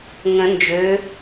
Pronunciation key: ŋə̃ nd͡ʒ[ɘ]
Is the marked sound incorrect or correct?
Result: incorrect